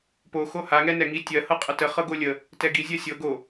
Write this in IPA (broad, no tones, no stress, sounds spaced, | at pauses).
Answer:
p o x o h a ŋ ɛ n ɛ ŋ i tʲ ɜ h ɤ qʼ ə t ə χ ɤ ɡ o lʲ ə | t ɛ ɡ i zʲ ɜ sʲ ɤ ɡ o